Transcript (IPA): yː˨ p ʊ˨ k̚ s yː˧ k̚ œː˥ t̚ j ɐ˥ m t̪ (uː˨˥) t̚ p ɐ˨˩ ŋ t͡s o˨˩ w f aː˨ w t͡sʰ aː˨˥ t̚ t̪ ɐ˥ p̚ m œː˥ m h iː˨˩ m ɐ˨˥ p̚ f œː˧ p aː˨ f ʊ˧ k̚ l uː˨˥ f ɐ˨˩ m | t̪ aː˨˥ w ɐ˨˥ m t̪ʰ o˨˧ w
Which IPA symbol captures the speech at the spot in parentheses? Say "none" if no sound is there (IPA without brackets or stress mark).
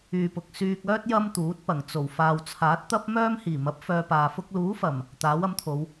uː˨˥